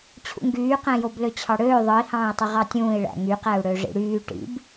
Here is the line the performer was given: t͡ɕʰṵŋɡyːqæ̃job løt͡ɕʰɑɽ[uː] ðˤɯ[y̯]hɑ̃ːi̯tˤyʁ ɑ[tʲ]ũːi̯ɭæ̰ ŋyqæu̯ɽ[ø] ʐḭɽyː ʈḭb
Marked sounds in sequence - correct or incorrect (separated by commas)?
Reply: incorrect, incorrect, correct, correct